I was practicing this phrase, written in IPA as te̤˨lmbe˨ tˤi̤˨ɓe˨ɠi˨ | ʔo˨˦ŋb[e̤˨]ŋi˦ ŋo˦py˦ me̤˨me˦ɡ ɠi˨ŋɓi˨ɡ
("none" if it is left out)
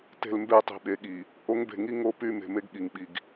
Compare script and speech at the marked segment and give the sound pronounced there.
e̤˨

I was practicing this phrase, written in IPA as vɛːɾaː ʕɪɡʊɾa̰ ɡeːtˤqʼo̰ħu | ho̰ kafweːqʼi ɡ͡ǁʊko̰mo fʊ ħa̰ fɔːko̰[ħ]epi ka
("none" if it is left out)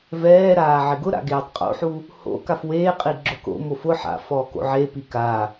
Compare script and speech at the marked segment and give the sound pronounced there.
ʕ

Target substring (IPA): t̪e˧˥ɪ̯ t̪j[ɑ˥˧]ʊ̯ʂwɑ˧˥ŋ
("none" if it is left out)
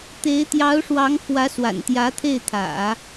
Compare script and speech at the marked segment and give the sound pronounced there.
ɑ˧˥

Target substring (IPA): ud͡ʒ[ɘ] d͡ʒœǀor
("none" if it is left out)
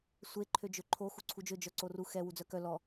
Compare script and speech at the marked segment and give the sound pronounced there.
ø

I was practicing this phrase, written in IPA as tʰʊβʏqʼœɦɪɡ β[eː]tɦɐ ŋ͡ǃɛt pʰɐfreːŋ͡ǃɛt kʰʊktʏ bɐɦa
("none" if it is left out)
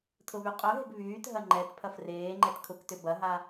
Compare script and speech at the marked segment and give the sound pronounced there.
yː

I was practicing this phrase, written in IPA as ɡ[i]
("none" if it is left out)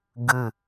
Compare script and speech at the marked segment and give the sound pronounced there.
ɨ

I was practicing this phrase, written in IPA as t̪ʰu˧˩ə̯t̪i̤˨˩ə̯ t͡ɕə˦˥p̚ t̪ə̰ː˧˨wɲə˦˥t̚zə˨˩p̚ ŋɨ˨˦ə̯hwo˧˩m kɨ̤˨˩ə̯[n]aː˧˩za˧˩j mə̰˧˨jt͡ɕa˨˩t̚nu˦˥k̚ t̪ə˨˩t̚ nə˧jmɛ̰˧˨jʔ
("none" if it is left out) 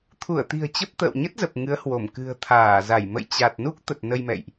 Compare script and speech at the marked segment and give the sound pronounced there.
t̪ʰ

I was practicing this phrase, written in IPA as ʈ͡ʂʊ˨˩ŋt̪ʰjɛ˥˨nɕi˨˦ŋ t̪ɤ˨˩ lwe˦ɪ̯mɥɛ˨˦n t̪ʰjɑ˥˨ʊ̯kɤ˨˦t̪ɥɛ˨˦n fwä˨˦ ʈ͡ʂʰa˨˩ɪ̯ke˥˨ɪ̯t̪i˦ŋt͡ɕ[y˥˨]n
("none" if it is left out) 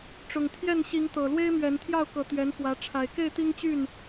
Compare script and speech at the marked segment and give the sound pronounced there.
y˥˨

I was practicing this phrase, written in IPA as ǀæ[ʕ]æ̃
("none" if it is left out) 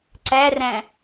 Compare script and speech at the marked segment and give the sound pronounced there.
r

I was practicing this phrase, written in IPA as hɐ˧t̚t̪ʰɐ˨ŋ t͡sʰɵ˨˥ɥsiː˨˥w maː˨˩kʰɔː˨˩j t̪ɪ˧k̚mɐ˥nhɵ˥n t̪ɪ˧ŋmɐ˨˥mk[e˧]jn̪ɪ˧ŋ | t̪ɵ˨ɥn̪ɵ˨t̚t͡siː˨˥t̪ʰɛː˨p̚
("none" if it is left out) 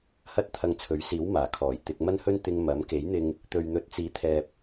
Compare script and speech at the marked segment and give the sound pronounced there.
e˨˥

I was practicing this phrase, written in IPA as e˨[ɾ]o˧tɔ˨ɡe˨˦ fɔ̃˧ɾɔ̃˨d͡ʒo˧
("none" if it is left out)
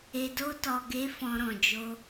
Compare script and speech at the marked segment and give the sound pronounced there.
d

